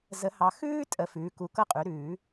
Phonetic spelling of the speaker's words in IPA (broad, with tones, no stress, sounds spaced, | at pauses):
z ə˨˩˦ h ɑ˨ x ʉː˥ tʼ ə˨ f ʉː˩˥ k u˩˥ k ɤ˥ qʼ ʉ˩˥ ɾ ʉː˨˩˦